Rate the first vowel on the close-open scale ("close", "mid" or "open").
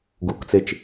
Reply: close